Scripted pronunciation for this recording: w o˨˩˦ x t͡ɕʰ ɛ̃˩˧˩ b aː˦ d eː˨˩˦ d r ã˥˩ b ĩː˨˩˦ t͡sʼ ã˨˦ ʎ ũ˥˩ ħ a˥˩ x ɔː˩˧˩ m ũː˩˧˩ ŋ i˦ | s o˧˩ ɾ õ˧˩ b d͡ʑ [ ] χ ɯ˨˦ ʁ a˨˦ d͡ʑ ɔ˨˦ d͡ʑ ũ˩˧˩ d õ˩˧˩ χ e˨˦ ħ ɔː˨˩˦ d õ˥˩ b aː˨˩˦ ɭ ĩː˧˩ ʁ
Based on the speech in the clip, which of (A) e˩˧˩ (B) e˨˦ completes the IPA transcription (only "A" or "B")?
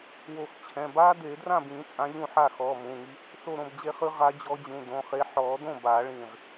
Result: B